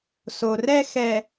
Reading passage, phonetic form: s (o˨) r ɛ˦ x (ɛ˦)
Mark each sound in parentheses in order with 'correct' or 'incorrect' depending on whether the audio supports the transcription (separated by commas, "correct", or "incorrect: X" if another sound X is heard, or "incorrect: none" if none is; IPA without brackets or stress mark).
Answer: correct, incorrect: ɛ˨